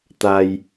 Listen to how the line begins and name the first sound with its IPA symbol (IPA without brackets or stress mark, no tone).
t̪